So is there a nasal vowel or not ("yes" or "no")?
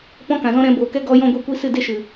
yes